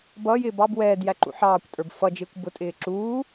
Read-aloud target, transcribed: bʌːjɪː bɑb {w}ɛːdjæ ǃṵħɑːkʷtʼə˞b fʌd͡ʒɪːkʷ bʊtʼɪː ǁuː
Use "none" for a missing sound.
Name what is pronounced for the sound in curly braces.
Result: w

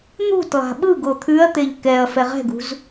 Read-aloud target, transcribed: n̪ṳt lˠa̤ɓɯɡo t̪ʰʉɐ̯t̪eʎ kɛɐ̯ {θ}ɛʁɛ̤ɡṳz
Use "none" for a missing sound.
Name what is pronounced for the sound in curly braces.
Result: f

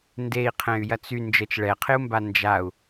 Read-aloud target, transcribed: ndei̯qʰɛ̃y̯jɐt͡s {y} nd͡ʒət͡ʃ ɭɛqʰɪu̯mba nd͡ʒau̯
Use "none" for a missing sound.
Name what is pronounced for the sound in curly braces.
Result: y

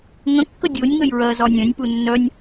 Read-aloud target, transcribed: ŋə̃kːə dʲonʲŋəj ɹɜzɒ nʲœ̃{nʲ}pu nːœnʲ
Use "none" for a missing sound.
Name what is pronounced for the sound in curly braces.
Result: nʲ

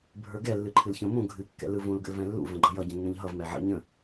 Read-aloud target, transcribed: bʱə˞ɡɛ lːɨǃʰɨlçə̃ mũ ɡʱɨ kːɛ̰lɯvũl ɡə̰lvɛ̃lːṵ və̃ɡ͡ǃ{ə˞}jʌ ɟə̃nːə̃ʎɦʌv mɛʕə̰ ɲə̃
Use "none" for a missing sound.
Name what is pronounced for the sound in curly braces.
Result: ʌ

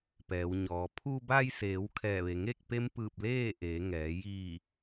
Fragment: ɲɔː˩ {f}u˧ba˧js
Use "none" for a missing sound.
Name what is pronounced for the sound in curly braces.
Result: pʰ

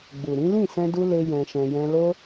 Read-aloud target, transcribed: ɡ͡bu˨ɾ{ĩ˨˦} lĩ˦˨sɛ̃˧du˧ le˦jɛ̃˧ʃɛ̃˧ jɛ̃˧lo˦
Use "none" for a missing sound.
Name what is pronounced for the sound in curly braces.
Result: ĩ˨˦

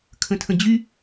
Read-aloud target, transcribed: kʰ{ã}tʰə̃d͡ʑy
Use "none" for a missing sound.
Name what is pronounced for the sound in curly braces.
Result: ə̃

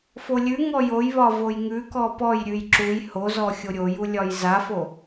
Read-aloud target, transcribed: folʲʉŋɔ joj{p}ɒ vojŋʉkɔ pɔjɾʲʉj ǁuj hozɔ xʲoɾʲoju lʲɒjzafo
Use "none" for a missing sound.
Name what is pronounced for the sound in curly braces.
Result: β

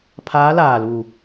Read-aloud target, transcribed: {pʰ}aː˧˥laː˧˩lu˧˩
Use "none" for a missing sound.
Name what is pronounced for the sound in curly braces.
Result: pʰ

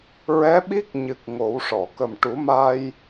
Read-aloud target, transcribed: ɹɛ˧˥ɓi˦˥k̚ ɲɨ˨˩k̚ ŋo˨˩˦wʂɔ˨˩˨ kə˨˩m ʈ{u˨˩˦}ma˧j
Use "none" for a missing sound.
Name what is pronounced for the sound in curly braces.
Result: u˨˩˦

